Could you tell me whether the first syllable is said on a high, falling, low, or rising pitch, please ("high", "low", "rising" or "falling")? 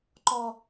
high